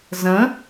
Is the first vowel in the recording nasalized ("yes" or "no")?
yes